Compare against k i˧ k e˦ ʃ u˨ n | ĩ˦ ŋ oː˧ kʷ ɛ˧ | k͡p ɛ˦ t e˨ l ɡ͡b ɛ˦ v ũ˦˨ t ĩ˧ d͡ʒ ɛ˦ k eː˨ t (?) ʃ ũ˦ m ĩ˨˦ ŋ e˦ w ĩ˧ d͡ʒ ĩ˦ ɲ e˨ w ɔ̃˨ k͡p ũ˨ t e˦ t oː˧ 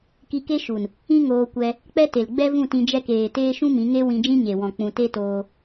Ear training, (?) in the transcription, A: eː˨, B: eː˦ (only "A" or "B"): B